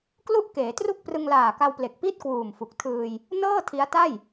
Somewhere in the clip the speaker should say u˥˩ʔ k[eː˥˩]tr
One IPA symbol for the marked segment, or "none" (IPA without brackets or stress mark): eː˩˦